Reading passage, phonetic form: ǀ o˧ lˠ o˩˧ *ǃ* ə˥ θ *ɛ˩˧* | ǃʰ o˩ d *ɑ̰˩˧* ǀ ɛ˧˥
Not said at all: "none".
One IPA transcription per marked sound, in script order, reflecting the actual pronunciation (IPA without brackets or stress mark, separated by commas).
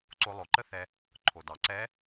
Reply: ǃ, ɛ˧, ɑ˩˧